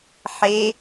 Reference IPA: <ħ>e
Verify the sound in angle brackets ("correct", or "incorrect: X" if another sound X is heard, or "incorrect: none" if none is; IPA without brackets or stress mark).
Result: correct